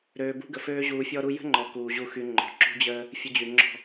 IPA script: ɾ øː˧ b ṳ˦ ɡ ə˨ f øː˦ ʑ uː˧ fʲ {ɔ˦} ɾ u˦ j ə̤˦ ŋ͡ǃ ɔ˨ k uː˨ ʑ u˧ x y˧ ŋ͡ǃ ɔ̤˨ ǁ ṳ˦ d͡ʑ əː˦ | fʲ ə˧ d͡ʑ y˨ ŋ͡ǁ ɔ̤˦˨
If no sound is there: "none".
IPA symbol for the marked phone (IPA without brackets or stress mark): ɔ˦